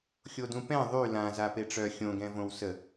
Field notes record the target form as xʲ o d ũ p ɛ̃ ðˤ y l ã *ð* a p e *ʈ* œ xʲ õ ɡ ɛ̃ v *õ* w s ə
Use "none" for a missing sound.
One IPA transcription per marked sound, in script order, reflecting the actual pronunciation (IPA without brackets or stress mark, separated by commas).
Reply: z, ʈ͡ʂ, õ